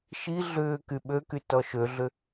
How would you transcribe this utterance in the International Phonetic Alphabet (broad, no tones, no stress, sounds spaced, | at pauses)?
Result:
ʃ i ɮ ʏː k y ɓ ø k y t ɔ ʃ ø ɮ ʏ